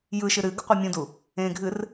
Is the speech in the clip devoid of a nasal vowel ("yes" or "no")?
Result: no